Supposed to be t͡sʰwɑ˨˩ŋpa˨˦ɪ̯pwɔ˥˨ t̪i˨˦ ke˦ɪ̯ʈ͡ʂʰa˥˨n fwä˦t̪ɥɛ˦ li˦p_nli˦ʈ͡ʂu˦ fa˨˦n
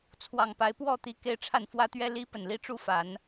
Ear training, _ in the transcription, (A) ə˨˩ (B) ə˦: A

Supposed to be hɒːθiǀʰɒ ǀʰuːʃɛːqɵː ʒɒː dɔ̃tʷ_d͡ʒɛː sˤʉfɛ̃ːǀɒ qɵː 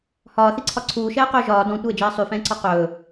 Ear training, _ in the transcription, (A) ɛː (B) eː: B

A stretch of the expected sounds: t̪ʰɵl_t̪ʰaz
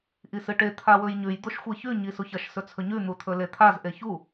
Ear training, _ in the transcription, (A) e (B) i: A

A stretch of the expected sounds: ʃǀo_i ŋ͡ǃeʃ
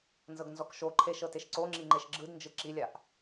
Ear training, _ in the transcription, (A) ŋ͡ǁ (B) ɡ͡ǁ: A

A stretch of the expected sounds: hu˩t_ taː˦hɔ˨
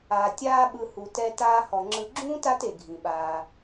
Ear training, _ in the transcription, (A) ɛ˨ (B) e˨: A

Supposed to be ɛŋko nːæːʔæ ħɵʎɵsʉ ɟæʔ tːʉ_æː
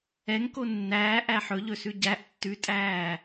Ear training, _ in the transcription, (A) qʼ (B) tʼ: B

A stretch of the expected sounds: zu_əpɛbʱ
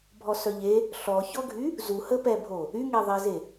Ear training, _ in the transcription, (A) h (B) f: A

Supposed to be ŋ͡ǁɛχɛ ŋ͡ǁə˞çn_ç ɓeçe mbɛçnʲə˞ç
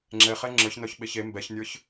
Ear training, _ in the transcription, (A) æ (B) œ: B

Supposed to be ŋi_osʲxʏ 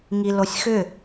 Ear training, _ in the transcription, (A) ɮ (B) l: B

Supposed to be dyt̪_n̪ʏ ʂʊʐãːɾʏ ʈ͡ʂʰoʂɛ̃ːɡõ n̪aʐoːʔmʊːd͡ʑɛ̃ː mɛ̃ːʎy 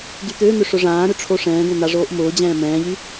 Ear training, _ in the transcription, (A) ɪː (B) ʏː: B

